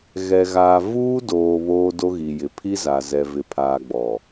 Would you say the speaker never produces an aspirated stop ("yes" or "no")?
no